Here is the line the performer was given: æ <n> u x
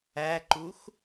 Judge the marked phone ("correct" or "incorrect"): incorrect